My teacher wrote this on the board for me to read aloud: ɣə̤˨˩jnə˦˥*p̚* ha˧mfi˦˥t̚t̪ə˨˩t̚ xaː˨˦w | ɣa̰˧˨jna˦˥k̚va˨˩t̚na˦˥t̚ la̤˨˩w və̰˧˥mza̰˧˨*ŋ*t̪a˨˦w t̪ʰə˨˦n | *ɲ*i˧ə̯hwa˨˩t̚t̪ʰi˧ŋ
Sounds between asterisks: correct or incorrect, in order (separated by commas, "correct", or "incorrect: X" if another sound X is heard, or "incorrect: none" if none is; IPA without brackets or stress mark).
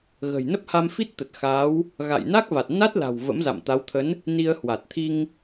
correct, incorrect: m, incorrect: n